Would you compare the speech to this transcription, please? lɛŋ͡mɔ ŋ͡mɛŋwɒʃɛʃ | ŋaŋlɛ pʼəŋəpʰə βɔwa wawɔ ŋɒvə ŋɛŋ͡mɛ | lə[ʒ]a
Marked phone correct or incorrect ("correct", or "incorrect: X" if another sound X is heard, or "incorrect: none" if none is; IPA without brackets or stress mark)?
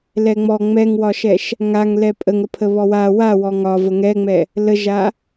correct